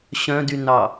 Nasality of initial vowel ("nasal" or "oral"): nasal